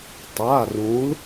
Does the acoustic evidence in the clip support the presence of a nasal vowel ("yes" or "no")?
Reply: yes